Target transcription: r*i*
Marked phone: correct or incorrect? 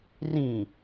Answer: incorrect